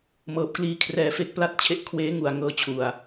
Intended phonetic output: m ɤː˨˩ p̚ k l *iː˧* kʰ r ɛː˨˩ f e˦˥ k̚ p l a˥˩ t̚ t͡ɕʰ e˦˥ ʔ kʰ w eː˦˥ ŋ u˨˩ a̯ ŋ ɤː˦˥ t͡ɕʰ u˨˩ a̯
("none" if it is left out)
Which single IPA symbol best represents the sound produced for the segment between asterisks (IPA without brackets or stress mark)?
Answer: iː˧